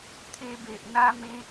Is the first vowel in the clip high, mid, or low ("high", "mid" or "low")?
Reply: mid